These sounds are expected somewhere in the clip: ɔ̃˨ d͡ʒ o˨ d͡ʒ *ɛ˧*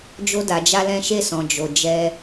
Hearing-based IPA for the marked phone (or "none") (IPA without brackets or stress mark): ɛ˧